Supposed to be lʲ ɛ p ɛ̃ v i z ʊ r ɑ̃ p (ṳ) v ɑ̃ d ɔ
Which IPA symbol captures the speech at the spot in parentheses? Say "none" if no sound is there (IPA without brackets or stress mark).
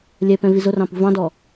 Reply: ṳ